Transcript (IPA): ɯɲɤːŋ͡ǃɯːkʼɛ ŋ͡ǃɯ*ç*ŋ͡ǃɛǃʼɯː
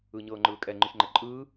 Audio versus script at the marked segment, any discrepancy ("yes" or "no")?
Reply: no